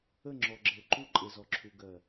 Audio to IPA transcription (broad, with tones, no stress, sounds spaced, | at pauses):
ə˦˨ ŋ͡ǁ ɔ˨ ɡ͡ǁ ə˨ ʊ̯ ǃ u˦ ǃʼ e˨ z ɔ˨ ǁʰ u˨ ɡ ɜ˨